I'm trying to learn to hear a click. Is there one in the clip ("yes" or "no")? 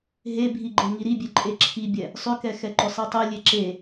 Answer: yes